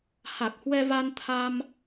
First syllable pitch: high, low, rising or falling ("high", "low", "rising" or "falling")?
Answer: low